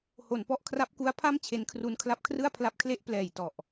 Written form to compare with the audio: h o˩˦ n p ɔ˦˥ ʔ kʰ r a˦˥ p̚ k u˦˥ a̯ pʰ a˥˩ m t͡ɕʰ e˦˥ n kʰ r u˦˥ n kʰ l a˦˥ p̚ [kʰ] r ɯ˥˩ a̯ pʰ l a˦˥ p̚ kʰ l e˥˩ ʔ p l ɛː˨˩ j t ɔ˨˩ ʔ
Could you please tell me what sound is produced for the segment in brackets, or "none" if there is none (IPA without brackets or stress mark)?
kʰ